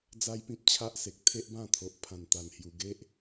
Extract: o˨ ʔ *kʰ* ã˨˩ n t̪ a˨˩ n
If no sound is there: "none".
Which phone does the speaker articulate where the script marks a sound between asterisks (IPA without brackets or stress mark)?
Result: pʰ